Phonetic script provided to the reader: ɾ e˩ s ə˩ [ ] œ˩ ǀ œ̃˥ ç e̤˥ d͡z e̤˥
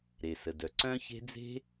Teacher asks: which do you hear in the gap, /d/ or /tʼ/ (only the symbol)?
d